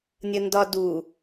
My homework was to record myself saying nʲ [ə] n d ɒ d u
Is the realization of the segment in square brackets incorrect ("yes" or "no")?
no